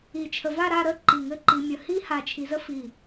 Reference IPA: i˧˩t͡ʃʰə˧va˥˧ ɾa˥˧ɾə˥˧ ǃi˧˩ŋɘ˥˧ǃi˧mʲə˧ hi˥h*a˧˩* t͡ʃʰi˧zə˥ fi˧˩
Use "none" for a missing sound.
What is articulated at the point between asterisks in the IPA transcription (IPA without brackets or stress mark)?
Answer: a˧˩